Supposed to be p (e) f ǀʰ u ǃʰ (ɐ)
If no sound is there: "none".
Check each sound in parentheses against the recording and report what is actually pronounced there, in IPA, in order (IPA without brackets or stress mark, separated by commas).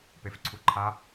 e, a